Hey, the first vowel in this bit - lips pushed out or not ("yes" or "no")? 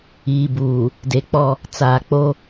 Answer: no